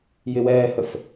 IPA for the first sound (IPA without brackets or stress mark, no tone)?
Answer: j